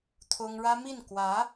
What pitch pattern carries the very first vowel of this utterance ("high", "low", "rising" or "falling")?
high